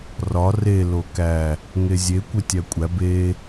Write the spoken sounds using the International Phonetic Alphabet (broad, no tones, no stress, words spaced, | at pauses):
rɒ re lokæ | ŋezʲe kʷetʲækʷʼæ be